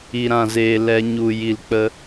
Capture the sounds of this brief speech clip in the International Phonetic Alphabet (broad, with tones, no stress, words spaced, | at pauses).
i˧ɾã˦˨zeː˧ lɛ˧ ɲu˨ ji˨lk͡pə˧